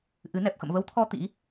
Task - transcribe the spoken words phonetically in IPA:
ʔ ɨ˨˦ n ɛ˨˩ p̚ x ə̰˧˨ m v ə˨˦ w t̪ʰ ɔ˧ t̪ ḭ˧˥

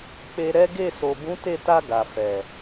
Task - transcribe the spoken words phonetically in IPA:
k͡p e˧ ɾ ɛ˦ ɡ e˦˨ s o˨ b ũ˨˦ t e˦˨ t a˧ ɡ a˨ f ɛ˨

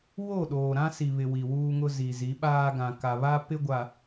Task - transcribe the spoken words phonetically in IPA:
w o˦˨ ɗ oː˨ ɾ ã˦ s i˨ β ɪ˨ w i˨ w uː˦ ŋ ʊ˦ z i˨ z i˨˦ ɓ aː˦ ɡ ã˨ k a˨ β a˦ p ɪ˦ ɡʷ a˨

